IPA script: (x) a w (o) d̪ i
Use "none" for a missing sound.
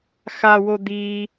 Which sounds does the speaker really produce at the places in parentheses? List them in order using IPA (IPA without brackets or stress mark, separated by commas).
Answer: x, o